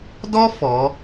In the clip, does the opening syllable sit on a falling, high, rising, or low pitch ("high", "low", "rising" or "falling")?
high